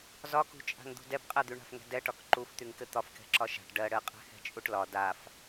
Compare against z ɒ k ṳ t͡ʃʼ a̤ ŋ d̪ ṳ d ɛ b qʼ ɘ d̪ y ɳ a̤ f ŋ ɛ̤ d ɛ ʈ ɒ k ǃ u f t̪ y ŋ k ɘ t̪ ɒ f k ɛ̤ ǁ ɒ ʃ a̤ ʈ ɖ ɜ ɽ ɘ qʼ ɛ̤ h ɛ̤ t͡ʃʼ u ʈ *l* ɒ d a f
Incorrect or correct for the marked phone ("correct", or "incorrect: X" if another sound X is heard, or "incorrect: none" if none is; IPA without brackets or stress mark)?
correct